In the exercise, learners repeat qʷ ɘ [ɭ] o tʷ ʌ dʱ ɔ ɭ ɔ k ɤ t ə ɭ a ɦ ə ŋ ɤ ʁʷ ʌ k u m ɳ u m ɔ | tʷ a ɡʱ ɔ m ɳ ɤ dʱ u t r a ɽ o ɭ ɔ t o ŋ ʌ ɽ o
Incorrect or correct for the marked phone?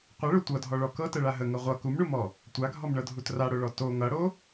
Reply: correct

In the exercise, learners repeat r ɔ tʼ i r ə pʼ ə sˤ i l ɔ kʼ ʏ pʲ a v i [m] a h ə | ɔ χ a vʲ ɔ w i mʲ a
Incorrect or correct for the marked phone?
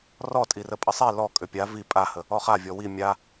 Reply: incorrect: pʼ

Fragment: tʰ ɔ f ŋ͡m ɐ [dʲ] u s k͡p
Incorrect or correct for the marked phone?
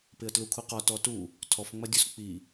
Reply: correct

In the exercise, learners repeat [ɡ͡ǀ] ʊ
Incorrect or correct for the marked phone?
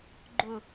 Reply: incorrect: ɡ͡ǃ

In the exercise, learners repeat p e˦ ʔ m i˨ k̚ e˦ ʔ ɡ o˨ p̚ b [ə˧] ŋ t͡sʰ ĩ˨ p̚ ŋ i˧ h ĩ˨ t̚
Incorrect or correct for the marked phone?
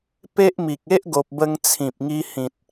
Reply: correct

